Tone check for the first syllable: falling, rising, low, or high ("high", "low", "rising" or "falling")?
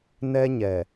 high